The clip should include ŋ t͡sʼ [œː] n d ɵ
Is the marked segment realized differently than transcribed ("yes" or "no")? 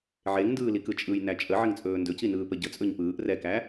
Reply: yes